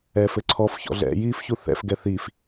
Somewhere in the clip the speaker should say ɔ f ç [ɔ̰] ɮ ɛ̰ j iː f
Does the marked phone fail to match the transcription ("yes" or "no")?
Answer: no